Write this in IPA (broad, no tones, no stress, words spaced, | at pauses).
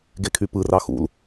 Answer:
ɡekʰypɯrɑ xṵl